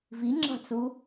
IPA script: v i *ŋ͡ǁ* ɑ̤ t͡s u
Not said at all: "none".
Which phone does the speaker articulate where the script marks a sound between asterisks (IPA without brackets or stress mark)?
ŋ͡ǁ